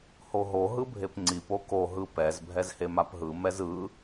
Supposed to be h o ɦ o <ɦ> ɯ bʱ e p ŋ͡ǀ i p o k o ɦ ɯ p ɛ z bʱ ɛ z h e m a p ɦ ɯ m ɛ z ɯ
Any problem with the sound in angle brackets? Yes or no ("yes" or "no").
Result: no